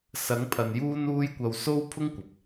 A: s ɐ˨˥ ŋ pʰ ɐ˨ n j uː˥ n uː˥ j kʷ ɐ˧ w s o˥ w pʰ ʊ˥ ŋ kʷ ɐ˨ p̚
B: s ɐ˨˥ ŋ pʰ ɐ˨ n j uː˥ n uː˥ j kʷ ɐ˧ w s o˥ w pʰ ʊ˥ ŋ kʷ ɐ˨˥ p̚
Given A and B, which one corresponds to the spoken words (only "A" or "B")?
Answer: A